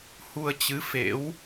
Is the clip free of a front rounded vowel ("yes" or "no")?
yes